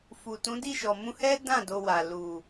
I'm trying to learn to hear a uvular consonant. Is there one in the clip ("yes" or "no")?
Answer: no